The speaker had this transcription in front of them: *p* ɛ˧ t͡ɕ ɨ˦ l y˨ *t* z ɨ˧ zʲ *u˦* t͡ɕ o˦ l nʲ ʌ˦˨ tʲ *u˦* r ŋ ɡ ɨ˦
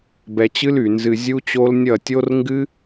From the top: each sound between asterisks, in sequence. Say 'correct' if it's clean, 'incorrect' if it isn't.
incorrect: b, incorrect: n, correct, incorrect: o˦

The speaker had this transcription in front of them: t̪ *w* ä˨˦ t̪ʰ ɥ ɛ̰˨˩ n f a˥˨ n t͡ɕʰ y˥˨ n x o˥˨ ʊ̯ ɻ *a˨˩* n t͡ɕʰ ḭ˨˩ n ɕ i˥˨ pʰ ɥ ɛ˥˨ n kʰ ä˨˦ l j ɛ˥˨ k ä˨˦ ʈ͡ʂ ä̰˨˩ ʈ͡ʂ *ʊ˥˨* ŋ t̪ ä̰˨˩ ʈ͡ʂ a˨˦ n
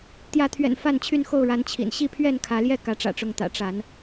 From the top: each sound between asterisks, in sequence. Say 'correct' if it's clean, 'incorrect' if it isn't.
incorrect: j, incorrect: a˨˦, incorrect: ʊ˨˦

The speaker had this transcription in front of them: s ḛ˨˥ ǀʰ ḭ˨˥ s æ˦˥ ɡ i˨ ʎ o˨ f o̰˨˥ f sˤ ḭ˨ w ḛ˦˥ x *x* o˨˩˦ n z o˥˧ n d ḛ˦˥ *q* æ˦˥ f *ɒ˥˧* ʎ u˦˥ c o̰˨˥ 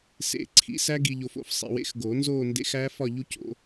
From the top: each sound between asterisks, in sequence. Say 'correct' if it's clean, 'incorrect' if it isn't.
incorrect: ɡ, incorrect: x, correct

